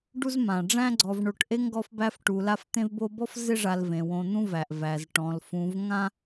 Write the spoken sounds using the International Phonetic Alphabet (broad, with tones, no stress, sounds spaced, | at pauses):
ɖ u˦ z m ã˩ ɖ͡ʐ æ̃˦ ɡ͡ǀ ɔ˨ v ɳ o˨ ʈ ʔ e˥ ŋ ɡ ɔ˦ f b æ˦ f ʈ u˨ l a˦ f t̪ ẽ˦ v b o˦ b ɔ˥ f z ɪ˦ ʐ a˨ l v ẽ˩ w õ˨ n̪ ũ˦ v æ˩ ʔ v æ˩ z ʈ ɔ̃˩ l f ũ˨ v ŋ ã˦